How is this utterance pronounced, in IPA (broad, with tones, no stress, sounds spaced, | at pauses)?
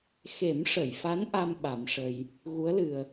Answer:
x e˨˩˦ m ʂ ə˨˩˨ j f a˧˥ n ʔ a˧ m ɓ a˨˩˦ m ʂ ə˧ j | ɣ u˧˥ ə̯ l ɨ˨˩ ə̯